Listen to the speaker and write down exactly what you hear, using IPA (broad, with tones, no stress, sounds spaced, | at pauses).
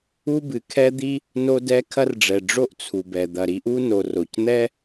u˥ b ɨ˩ kʰ ɛ˥ d̪ i˥ | n o˥ d ɛ˥ kʰ ɐ˥ r ɖ͡ʐ ɛ˩ ɖ͡ʐ o˥ ʔ t͡sʰ u˩ b ɛ˩ d̪ ɐ˩ ɾ i˥ ʔ u˥ n o˩ r o˩ c n̪ ɛ˥